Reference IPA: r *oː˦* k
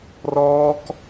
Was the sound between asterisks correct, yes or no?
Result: no